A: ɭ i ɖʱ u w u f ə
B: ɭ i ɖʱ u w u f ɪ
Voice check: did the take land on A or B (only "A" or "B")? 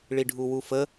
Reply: A